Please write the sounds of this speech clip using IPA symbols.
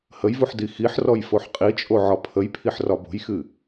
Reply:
həjvuħ dixiħrɔj foħqʼit͡ʃʼo ʕɒpʰəjpʰiħ rɒbo̤jxɨ

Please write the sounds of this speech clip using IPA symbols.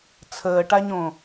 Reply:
t͡sʰəːʈaɲõ

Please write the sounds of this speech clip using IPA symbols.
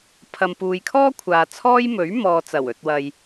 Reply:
pʰɐ˨mpuː˨jkʰɔː˥kʷʰaː˨ t͡sʰɔː˥jmɵ˨˥ɥ mɔː˨t͡sɐ˨˩w ɵ˨t̚wɐ˨j

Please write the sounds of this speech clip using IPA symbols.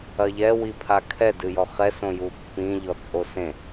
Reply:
ɐʎɛ wipʰakʰɛ dɨjɔχɛ sõjupːĩ ʎɔt͡sʼosẽ

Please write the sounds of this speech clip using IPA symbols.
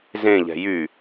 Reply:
zẽ ʎɛ̤jy

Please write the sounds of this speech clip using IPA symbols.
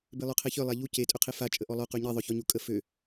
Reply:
belˠøqʰeçœ lˠaʎu ce tʼøqʰefa t͡ʃʼəʔɔlˠœ qyɲi ðˤœçɔɲukʼə fø

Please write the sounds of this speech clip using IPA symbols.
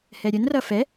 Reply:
hɛɾʲənrʌ fɛ

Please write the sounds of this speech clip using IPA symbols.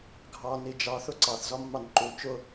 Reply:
ɡʱɑni d͡ʒɑθʊ ǀɑθzɒmːɑn ǃu t͡ʃʊ

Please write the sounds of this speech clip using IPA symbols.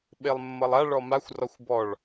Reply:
ɓelˠmːʌlˠa ɭɔmaxʷ rɔxʷbɔɭ

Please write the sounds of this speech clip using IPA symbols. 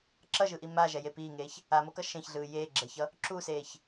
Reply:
ǁʌʒɯʔi maʒɛje piːŋeːç | amokʌ ʃẽçɮɯː jeːɡ͡ǁɛçʌ | ǁuseːç

